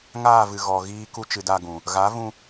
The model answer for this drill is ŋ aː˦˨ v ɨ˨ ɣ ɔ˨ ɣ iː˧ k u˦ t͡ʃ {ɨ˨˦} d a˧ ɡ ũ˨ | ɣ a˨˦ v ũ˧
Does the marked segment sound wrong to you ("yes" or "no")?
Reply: no